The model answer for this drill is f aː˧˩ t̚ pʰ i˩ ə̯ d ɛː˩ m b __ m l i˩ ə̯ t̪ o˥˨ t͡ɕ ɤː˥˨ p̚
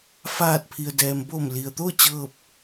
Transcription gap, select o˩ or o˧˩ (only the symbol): o˧˩